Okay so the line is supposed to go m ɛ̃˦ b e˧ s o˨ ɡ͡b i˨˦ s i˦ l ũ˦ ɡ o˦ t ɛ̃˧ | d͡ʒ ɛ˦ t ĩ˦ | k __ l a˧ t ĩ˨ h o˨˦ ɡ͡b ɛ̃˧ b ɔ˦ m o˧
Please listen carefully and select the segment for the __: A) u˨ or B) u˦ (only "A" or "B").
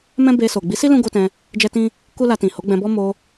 B